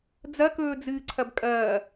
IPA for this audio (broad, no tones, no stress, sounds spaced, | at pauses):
d͡z ɐ k ɵː d͡z ɨː ǀʰ ɐ b kʼ ɐː